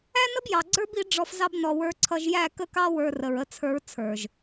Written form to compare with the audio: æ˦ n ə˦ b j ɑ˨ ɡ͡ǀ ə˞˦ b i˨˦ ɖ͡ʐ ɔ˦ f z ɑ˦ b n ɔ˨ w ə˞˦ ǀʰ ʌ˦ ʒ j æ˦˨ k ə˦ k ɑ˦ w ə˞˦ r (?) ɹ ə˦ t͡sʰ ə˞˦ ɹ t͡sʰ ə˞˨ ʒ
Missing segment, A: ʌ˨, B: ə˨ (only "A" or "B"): B